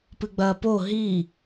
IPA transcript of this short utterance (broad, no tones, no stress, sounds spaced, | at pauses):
p ɨ ɡ͡b ɐː p o ɦ i